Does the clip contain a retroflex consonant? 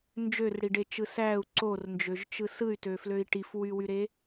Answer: yes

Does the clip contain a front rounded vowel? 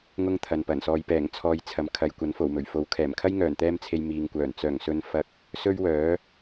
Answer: yes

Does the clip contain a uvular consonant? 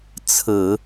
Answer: no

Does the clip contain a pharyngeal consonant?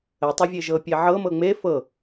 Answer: yes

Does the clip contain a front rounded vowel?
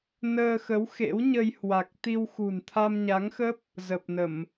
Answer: no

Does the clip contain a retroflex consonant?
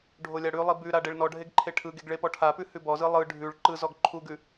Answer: yes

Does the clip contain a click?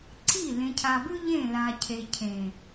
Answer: yes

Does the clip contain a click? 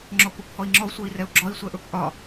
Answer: yes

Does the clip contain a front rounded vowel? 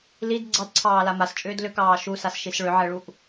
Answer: yes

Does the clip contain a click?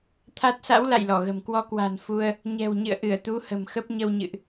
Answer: no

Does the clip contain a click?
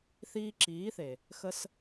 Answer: yes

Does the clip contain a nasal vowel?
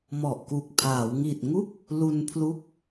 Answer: no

